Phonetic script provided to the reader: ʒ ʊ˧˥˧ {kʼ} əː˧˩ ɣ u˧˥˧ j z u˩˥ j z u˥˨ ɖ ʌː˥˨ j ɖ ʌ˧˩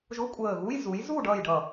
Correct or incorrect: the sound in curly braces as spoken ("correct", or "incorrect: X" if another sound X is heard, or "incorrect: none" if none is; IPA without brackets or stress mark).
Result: incorrect: kʷʼ